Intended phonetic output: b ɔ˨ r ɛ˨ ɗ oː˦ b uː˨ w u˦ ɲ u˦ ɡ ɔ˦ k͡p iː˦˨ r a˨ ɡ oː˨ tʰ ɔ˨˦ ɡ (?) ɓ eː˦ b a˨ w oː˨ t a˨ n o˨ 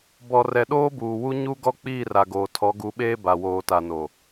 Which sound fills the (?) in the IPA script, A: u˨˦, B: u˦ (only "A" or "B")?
A